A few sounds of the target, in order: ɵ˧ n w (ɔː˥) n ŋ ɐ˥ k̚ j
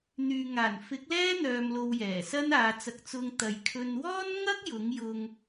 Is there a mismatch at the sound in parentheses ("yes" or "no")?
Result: no